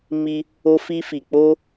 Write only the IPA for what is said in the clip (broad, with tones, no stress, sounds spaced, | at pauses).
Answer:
m i˧ | o˧ f i˧ f i˨ k͡p o˧